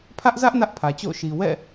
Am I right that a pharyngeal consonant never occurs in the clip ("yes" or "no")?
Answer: yes